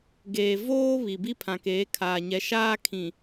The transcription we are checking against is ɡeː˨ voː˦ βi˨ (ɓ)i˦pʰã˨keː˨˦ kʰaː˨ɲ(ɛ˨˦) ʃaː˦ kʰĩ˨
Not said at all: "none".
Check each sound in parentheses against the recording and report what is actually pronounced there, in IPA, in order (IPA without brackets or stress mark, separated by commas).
b, ɛ˨˦